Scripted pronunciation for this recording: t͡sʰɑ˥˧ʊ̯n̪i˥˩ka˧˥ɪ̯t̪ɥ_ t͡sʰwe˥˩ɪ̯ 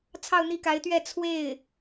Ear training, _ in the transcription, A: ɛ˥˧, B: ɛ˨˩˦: A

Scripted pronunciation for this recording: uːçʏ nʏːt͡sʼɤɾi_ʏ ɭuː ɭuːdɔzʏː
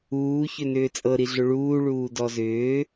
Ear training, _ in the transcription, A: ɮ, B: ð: A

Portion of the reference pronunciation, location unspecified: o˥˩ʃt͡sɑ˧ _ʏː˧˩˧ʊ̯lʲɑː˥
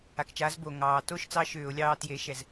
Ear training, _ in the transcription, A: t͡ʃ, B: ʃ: B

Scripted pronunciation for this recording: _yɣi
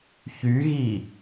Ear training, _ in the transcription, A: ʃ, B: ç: B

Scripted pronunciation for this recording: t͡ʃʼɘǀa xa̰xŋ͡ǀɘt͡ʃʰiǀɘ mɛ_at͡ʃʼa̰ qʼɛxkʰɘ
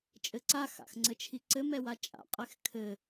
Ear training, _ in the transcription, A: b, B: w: B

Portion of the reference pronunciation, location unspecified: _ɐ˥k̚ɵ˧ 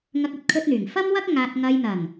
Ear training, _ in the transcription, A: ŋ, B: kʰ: A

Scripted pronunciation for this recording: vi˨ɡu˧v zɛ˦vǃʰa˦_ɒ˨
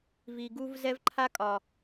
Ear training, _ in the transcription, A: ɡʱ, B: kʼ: B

